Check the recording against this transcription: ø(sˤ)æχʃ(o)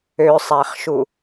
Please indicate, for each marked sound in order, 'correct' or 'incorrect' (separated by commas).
correct, incorrect